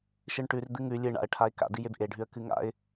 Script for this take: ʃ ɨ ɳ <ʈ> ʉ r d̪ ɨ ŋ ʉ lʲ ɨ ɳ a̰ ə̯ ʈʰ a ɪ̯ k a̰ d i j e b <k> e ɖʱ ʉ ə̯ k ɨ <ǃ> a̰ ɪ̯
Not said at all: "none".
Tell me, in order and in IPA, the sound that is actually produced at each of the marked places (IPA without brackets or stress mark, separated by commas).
ʈ, ʔ, ŋ